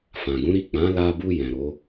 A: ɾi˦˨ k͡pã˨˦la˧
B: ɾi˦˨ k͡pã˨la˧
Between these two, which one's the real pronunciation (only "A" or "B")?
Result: A